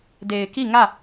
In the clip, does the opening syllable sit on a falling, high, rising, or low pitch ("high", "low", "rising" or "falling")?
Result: low